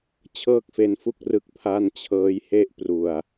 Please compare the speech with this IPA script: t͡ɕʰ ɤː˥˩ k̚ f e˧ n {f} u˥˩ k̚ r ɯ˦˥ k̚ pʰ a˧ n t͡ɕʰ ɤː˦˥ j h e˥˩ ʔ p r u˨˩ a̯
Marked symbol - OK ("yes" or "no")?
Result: yes